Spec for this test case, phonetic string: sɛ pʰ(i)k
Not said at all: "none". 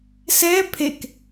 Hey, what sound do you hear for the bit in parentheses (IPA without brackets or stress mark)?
e